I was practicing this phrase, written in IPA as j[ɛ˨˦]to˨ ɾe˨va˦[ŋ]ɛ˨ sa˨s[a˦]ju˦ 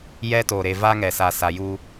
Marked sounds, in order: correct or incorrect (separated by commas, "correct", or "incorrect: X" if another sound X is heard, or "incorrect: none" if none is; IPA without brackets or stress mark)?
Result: incorrect: ɛ˦, correct, incorrect: a˨